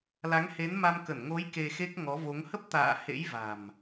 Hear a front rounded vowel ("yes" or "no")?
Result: no